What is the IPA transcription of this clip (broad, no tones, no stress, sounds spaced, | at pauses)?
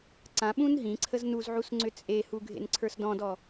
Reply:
ǀ ã ɓ ũ n ɦ ĩ ǀʰ ə z n u z ʕ u s ŋ͡ǀ ʏ t͡sʼ e h u ɡʱ ḛ n ǀʰ ə˞ s d ɔ̃ d ɔ